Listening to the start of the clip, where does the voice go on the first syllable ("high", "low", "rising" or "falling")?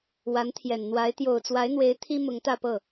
rising